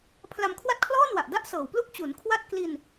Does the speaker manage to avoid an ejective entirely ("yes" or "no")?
yes